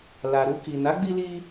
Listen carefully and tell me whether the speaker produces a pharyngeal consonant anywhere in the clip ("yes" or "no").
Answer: no